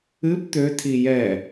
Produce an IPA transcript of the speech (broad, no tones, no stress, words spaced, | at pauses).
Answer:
ɨp t̪øtʰi jɛ